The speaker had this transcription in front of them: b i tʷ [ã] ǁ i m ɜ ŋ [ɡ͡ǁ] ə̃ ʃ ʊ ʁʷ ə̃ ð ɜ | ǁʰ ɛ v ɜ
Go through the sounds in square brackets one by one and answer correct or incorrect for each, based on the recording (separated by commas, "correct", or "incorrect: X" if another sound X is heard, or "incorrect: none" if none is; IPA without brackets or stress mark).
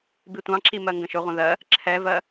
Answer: incorrect: ɑ̃, incorrect: ɡ